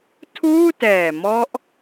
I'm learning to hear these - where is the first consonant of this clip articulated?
tongue tip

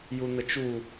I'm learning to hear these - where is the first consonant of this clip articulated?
palate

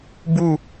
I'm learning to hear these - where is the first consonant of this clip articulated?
lips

